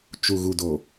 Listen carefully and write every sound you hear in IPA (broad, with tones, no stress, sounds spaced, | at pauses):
t͡ʃ u˨ ɣ u˨ d o˨